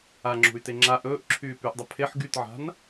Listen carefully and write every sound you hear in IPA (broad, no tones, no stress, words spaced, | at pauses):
aŋ͡ǁṳy̯te ŋ͡ǁa ʔɵːʔǁʰyː pyʔdˤə pʰeħ ɡytʕa̤n